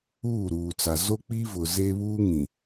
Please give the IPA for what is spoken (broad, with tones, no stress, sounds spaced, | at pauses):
uː˦˨ ɾ uː˨ t͡s a˨ z o˦ k͡p i˦ v ʊ˨ z e˦ β uː˦ ŋ ĩ˨